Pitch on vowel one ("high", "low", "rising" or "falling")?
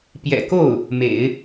low